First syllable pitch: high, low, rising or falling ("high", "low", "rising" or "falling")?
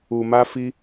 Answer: low